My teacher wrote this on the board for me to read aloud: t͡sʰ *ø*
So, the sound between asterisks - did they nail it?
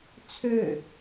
yes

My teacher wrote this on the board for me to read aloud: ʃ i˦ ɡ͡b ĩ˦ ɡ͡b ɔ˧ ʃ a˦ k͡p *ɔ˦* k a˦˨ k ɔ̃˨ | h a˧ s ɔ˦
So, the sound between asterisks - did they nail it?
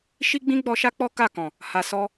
yes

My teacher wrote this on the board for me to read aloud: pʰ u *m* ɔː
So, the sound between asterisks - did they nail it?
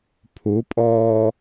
no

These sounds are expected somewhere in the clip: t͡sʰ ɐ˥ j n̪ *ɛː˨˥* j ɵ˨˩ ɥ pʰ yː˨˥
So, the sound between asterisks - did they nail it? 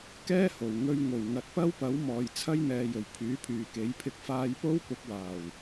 no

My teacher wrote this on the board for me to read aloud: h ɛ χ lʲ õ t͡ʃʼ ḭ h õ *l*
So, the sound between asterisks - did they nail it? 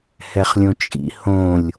no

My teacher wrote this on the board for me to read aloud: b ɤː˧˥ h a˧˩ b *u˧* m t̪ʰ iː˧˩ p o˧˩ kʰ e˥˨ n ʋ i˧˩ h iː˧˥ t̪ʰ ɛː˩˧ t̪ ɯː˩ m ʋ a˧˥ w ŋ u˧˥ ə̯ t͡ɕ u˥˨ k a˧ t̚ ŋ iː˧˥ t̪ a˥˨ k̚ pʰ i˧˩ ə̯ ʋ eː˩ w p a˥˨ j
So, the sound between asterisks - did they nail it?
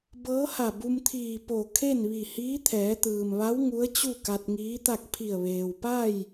yes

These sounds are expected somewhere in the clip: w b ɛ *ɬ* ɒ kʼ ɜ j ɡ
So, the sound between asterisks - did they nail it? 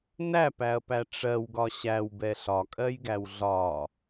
yes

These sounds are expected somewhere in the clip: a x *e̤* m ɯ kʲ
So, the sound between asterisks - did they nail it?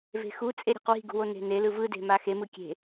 no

